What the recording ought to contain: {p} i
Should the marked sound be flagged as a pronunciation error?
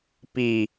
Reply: no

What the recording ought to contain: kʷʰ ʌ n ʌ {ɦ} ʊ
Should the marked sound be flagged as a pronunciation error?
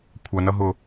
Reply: no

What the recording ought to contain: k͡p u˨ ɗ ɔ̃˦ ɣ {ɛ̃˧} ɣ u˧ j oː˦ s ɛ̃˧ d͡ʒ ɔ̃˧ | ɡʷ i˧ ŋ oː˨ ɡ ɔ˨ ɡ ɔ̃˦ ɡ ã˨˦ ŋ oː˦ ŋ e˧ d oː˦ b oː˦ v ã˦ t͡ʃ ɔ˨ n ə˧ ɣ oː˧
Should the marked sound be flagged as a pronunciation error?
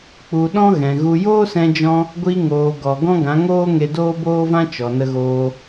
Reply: yes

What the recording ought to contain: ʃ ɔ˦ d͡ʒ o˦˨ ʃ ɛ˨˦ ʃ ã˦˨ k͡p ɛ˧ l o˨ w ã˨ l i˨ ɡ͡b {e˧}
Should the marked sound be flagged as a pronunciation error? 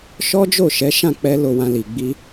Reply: yes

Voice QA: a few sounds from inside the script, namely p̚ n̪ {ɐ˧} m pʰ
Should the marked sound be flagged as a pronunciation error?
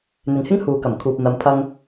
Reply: no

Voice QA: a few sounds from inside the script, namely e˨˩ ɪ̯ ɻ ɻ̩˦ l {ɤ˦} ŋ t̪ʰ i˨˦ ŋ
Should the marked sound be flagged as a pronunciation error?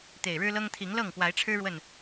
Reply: no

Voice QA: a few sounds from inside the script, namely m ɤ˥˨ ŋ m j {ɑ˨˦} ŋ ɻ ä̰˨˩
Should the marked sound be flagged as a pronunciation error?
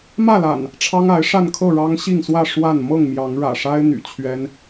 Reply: no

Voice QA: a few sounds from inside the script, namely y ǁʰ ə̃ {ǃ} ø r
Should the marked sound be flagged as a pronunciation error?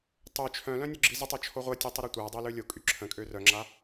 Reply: yes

